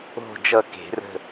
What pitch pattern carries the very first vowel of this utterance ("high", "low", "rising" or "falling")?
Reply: falling